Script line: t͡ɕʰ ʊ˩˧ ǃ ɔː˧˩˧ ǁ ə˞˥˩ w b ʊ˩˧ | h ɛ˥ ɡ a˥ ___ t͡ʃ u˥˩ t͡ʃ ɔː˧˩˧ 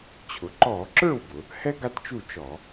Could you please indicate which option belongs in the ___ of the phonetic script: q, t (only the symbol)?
t